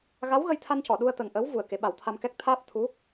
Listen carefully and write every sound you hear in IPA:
ɣ a˧˥ w ɣ ə˧ j t̪ʰ a˧ n c ɔ˨˩˨ ɗ u˧ ə̯ t̪ ə˨˩ ŋ ʔ ə˧˥ w v u˨˩ ə̯ k e˨˩˦ ɓ a˨˩˦ w t̪ʰ a˧ m k ɛ˦˥ k̚ t̪ʰ aː˦˥ p̚ t̪ʰ u˧˥

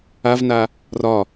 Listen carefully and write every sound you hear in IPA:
a v n a | r ɒ

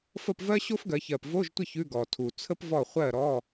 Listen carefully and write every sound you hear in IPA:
f ə˥˩ p v ɜ˥ ɕ o˥ f ɡ ɜ˩˧ ç ɜ˨˩ p v o˧˥˧ ʒ tʷ ə˥˩ ç ʉ˧˥˧ ɡ ɔ˨˩ tʰ u˨˩ t͡sʰ ə˥ p v ɔ˥˩ χʷ ɜ˥˩ ɾ ɔ˧˥˧

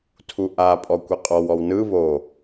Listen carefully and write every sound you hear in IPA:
tʰ u ʔ a pʼ ɔ kʷ ɤ qʼ ɔ w ɔ w n ɯ β o

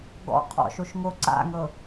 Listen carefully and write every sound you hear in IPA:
ɡ ɔ̰ qʰ ɔ̰ ʃ o ʃ ŋ o ǀ a̰ ŋ ɤ

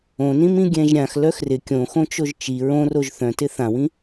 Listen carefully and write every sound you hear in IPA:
õ n ĩ m ĩ ɡʲ ɛ̃ ʒ ɾʲ ã x l œ x r ɪ kʲ õ x õ t͡ʃ o ʒ t͡ʃ i ɹ õ r o ʒ θ œ̃ t ɪ θ ã w ĩ

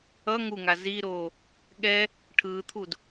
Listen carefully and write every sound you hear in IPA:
ʌ ŋ u ŋ a z i ɾ oː | ɠ ɛ | ʈʰ ɯː t̪ʰ u d

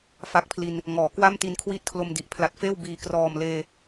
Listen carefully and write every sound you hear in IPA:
f a˦˥ k̚ pʰ l i˧ n | ŋ ɔː˩˦ k w a˥˩ m t i˧ n kʰ w i˥˩ t̚ kʰ l o˧ m d i˨˩ ʔ pʰ l a˨˩ t̚ f eː˥˩ w b iː˨˩ k r ɔː˨˩ m l eː˧

